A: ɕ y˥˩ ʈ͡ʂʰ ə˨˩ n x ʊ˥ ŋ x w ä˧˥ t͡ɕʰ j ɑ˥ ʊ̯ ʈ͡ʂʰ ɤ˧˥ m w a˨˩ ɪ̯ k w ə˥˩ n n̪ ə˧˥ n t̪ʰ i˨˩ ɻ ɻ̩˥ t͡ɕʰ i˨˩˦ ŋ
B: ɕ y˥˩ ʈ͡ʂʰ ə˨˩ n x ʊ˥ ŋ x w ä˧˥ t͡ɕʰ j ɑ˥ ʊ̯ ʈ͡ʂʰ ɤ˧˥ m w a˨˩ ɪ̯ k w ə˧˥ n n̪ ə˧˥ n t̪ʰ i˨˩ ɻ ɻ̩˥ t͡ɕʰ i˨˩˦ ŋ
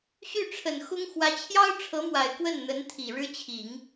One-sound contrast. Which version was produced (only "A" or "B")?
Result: A